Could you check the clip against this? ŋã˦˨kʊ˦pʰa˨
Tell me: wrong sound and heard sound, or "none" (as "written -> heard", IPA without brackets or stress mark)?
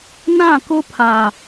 ŋ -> n